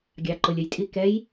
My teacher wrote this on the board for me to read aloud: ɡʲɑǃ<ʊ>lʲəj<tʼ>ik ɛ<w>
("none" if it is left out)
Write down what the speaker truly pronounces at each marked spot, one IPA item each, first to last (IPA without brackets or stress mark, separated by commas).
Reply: ʊ, tʼ, j